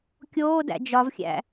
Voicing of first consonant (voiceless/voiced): voiceless